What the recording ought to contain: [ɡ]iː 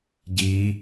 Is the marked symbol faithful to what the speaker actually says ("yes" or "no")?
no